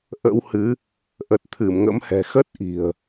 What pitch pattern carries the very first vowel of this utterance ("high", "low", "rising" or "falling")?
rising